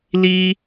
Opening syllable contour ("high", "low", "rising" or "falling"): high